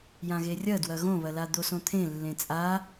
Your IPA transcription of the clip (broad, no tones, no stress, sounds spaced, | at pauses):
j ã ɣ e rʲ ɐ d w ɐ ɣ õ β ɐ l a d̪ o s õ t̪ʰ ẽ lː ẽ t͡sʼ a